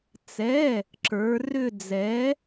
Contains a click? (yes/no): yes